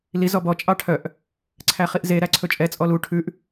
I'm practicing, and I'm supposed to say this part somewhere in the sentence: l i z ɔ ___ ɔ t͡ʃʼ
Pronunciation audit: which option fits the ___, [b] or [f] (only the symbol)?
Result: b